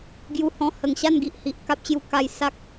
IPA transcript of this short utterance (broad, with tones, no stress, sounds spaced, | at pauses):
ɡ j u˧ h ɔ̃˧ h ə˨˩ ŋ ɕ a˥˧ n ɡ i˨ ʔ h i˨ ʔ k a˦ p̚ ɕ j u˧ k a˧ j s a˦ k̚